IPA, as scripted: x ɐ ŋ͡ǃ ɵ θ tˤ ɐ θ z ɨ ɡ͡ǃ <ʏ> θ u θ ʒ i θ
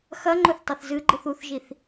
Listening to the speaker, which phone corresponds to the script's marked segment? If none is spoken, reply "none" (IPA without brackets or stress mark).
ɨ